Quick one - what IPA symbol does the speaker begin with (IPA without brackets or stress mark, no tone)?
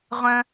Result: ʁʷ